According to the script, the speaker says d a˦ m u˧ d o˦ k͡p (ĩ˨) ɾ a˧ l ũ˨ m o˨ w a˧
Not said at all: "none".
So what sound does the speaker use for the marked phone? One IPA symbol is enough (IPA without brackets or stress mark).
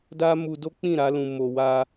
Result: ĩ˦˨